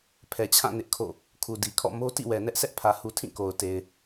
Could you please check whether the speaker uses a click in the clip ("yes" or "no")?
no